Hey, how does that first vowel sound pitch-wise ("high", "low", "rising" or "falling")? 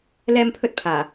high